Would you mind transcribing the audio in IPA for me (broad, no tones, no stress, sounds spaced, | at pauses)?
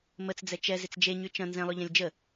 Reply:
m ə t͡s d͡z ɛ t͡ʃ ɛ z ɪ t͡s d͡ʒ e ɲ y t͡ʃ ɐ̃ n z ɛ̃ lˠ ø ʎ ɛ̃ lʲ d͡ʒ ə